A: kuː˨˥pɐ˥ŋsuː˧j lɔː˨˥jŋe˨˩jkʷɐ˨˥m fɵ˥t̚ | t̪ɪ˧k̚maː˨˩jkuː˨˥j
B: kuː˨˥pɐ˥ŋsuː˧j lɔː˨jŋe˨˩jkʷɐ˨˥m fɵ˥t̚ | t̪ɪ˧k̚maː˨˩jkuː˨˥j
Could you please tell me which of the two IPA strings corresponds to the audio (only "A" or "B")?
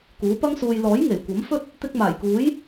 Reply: A